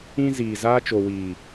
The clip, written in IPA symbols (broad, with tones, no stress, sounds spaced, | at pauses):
ĩ˦ z iː˨ z aː˧ t͡ʃ o˨ w iː˨